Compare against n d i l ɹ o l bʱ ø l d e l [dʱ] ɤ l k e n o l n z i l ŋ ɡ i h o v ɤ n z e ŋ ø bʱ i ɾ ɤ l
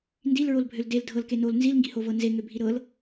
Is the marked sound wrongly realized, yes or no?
no